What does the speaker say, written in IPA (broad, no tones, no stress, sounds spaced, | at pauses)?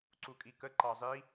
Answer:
ǀ u kʼ i k ə ǃ ɑ zˤ i